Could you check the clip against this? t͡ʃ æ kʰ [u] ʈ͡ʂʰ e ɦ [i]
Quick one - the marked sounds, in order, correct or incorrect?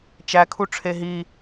correct, correct

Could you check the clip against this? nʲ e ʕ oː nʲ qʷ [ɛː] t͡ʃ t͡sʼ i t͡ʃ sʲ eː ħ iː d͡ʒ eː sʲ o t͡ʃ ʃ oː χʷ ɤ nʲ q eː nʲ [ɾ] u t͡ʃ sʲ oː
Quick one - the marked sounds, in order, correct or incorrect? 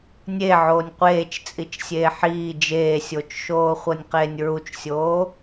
incorrect, incorrect

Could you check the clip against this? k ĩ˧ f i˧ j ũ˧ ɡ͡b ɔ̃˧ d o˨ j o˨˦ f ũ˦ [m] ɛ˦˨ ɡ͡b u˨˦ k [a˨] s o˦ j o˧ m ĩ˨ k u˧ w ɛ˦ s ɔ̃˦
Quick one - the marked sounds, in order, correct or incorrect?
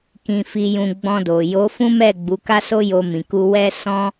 correct, incorrect

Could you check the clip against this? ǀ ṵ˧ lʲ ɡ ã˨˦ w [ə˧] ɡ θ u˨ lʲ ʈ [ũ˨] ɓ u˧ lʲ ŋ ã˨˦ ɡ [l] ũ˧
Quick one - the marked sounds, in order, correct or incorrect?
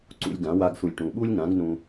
incorrect, correct, incorrect

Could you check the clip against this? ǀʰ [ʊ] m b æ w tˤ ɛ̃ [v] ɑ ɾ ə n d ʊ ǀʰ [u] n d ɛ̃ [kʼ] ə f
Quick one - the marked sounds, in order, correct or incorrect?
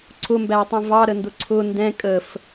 correct, correct, incorrect, correct

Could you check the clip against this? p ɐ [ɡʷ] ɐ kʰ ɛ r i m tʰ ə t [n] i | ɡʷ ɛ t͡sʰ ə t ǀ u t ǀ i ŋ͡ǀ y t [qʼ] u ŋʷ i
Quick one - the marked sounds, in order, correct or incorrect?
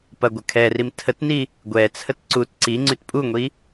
correct, correct, incorrect

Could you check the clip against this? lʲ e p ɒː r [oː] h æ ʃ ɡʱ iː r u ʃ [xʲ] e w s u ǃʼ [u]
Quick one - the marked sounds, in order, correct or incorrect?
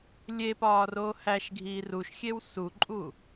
correct, correct, correct

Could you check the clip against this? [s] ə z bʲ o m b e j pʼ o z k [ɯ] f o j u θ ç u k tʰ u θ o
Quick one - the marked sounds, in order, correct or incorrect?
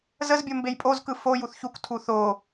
incorrect, correct

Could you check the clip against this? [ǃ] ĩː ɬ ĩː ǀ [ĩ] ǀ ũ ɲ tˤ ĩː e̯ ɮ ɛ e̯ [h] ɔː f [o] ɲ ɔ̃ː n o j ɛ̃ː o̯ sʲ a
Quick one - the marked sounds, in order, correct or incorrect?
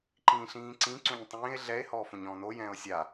correct, correct, correct, incorrect

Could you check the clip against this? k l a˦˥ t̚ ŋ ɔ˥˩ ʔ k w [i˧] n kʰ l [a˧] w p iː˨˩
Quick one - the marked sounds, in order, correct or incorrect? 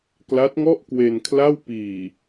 incorrect, incorrect

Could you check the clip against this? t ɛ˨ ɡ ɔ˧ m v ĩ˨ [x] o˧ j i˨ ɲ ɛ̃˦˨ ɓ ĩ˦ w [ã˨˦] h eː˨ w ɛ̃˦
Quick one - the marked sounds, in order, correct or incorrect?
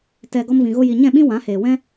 incorrect, correct

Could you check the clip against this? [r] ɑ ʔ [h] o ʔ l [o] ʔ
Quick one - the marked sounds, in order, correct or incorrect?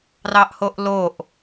correct, correct, correct

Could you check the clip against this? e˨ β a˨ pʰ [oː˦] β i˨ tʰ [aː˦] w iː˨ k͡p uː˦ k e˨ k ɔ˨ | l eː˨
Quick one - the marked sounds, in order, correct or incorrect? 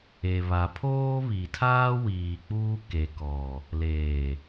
correct, correct

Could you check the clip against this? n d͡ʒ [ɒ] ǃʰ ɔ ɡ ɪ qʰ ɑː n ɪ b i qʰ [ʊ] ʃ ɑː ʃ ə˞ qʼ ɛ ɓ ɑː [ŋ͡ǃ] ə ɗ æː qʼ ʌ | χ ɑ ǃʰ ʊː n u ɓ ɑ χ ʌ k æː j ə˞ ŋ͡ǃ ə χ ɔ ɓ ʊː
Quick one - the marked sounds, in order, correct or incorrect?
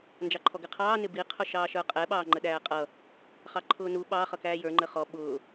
incorrect, correct, correct

